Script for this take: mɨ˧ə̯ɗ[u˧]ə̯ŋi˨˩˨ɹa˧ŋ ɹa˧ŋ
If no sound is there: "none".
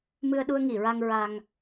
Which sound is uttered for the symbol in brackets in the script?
u˧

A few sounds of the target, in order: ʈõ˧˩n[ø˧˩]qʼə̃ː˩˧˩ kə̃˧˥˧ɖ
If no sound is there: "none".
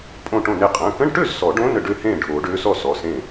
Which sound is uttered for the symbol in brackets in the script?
e˧˩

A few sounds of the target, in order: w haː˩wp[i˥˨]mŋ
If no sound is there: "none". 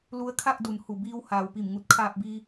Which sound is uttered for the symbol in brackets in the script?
i˧˩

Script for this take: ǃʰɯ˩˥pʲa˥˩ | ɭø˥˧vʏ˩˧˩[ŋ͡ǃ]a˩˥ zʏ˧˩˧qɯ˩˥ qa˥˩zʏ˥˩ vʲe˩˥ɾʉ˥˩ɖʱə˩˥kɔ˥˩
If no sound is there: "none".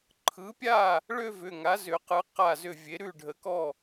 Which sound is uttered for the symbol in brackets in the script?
ŋ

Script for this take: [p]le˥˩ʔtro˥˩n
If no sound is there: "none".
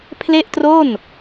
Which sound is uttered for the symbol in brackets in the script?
pʰ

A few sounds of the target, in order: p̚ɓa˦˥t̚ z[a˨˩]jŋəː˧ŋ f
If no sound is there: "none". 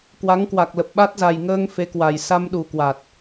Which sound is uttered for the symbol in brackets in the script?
a˨˩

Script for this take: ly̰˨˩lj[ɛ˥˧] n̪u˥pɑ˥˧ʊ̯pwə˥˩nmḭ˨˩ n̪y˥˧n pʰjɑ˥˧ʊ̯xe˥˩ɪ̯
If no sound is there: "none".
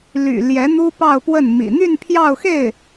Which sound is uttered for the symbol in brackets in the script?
ɛ˧˥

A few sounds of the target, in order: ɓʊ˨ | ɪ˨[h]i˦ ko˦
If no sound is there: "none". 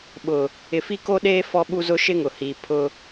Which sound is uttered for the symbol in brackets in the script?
f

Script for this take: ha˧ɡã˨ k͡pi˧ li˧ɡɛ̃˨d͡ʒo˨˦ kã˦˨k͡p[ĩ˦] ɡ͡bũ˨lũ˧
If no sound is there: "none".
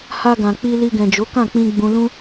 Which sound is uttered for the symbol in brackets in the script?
ĩ˧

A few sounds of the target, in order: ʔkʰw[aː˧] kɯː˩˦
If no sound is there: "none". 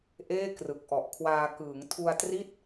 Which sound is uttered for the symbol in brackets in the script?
aː˧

